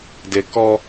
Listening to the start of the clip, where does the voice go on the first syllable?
low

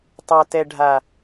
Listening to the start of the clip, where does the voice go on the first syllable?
low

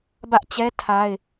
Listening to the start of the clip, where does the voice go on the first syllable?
high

